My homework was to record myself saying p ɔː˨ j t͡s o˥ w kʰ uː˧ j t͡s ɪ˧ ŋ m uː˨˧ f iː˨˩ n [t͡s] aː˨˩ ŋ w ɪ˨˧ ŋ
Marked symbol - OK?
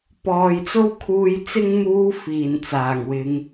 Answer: yes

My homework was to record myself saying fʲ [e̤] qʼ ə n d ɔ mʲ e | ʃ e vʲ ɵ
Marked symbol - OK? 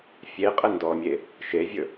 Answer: no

